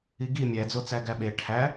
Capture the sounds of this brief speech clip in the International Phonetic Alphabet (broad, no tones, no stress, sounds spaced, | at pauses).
i ɡ i mʲ æ d͡z o t͡s æ ɡ æ ɓ e ʈʰ æ